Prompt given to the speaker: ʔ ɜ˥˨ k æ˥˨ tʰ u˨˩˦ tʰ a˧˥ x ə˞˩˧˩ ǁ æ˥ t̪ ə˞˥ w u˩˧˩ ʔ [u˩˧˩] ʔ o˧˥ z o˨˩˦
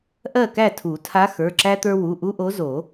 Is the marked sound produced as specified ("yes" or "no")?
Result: no